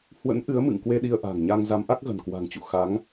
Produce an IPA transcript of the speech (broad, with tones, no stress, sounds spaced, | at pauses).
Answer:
h w ə̰˧˥ n ʔ ɨ˨˦ ə̯ m ɨ̰˧˨ ŋ k w e˧ ɗ i˧ ə̯ ʔ a̤˨˩ ŋ ɲ a˧ ŋ z a˨˦ m ʔ a˦˥ k̚ ɣ ə̤˨˩ n k w a̤˨˩ ŋ t͡ɕ ṵ˧˨ x a˨˦ ŋ